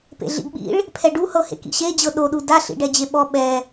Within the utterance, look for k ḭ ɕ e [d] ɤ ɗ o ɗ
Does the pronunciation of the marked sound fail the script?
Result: yes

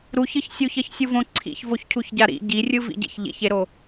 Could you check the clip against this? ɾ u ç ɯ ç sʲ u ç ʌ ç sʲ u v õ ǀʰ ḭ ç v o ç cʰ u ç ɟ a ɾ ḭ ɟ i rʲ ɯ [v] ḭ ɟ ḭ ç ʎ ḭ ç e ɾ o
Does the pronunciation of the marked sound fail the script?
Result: no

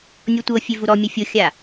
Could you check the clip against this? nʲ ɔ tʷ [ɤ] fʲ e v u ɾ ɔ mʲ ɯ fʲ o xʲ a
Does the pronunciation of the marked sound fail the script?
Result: no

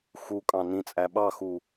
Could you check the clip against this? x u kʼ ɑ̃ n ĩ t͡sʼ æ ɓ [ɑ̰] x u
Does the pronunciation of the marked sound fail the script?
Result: yes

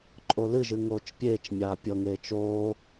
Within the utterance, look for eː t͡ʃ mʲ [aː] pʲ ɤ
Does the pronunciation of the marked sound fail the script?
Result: no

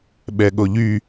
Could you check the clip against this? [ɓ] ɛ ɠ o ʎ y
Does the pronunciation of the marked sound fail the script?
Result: no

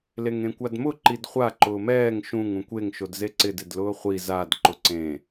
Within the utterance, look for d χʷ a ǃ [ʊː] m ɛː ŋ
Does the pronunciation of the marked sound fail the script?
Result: no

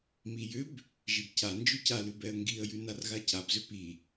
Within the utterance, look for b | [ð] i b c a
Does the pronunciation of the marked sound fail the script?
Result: yes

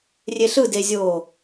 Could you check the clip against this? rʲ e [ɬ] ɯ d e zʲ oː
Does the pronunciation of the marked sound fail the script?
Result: no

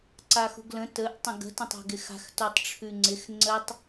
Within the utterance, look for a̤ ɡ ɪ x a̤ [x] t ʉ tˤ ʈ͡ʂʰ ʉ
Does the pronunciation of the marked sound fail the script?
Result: no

